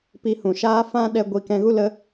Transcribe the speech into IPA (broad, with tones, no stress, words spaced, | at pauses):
pi˧hũ˨ʃaː˦ fã˦ɗɛ˧ ɡʷi˧ kɛ̃˧ɣu˦ lə˦